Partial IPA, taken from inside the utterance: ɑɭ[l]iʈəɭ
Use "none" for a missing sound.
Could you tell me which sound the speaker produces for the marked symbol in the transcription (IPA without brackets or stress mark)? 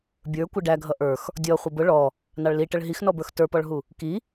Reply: l